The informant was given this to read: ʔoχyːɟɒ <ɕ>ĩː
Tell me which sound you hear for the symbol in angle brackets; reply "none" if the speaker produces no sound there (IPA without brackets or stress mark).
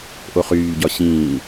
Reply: ɕ